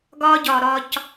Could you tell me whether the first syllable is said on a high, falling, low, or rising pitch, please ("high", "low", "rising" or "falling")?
high